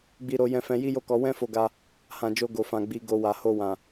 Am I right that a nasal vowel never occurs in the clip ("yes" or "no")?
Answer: no